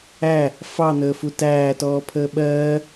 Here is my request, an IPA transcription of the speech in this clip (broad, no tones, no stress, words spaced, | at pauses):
æ | fɑn̪əːfu tæːtɔːpʰəː ɓɜː